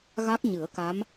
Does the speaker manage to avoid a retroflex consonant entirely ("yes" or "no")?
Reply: yes